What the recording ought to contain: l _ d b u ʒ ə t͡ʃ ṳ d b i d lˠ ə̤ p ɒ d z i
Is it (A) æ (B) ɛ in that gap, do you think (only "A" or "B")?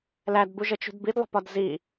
A